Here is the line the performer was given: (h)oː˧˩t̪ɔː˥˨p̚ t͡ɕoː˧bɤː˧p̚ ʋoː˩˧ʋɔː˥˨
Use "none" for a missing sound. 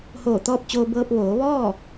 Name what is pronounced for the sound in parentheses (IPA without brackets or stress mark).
h